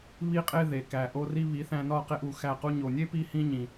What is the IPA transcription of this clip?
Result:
β i˦ qʼ e˦ ð e˨ k æ˨ ʔ o˦ r i˦ β i˨˦ θ æ̃˧ n ɒ˦˨ q e˦ ʔ u˧ x æ˦˨ q u˦ ɲ o˨ nʲ e˦ p i˦ h ĩ˦ ɲ ĩ˨

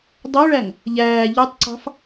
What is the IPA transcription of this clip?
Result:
dˤ ø ɭ æ ŋ | ʎ æː ʎ ø tˤ ǀ ɑ̤ f

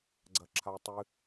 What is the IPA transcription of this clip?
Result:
ɡ͡ǀ ɐ ǁʰ a tˤ ɨ

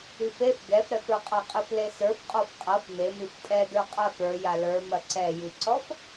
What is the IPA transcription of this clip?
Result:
i f e f ɡ ɛ f ɾ ɛ f ə˞ qʼ a qʼ e f l e s ə˞ f qʼ ɔ f qʼ a f m e m i f tʼ ɛ d ə˞ qʼ a f ə˞ j a l ə˞ m ɐ ǀ ɛ j i ǀ ɔ f

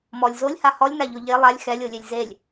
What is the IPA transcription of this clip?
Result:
m ɔ lʲ z o lʲ h a h ɔ lʲ n a ʎ o ʎ e lˠ a lʲ x ɛ lʲ o lʲ e lʲ z e lʲ

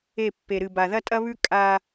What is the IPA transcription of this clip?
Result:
e˦˨ pː e˨ ɾ ɨ˨ b a˨ ð ɐ˦ tʼ ɐ˦ β ʉ˦ kʼ a˦

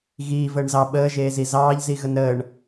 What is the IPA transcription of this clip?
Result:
ɣ iː v əː ɳ z ɑ ɓ əː ʒ eː z i z ɑː ʎ z i ɣ ə n ɾ əː ɳ

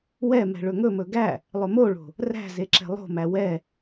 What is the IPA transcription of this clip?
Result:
w ɛ m ɛ̤ ɭ ɵ ŋ ɵ m ɵ ɡ æ | lˠ ɵ m o ɭ o̤ | r æ̤ z e ǁ ɛ̤ lˠ o̤ m æ w ɛ

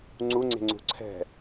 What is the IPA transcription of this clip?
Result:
ŋ͡ǀ u ŋ͡ǀ e̤ ŋ͡ǀ ṳ ǀʰ ɛ̤

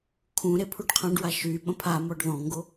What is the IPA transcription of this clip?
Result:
kʰ ũ ɾ e pʰ u ɖ qʰ ã ɖ w a ʃ y ɓ ə̃ pʰ a m ɔ ɖ ð ɔ̃ ŋ ɡ o

